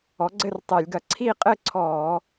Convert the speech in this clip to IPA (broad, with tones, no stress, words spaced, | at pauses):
ɔ˩˥ɡ͡ǀɘ˥˨rtˤɛ˧˩˧lʲɡɐ˧˩˧ ǀʰi˥˨qʼɘ˥˨ǀʰɔː˧˩˧